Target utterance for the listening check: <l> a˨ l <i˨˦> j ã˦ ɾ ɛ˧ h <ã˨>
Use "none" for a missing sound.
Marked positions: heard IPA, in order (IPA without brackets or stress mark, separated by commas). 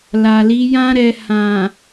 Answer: l, i˨˦, ã˨